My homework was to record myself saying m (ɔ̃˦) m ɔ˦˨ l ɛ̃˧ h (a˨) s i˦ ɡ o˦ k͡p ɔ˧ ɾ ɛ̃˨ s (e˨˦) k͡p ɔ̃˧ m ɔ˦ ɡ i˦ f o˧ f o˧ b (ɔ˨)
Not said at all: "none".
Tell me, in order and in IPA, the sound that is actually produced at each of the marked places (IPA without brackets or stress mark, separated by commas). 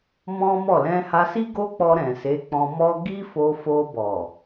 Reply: ɔ̃˦, a˧, e˨˦, ɔ˨